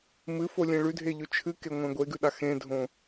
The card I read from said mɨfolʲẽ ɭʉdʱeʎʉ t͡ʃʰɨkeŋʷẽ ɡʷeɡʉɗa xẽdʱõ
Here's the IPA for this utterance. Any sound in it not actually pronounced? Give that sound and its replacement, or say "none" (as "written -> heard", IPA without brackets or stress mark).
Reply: none